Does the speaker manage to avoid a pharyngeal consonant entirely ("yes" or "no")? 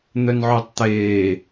no